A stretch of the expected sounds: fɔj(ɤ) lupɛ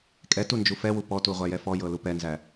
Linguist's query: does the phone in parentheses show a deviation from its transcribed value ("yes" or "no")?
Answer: no